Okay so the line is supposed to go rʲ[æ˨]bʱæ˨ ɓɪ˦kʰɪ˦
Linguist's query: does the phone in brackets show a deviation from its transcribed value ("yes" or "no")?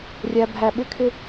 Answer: no